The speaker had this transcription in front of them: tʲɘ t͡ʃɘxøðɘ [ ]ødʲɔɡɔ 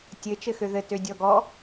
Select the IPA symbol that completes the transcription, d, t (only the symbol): t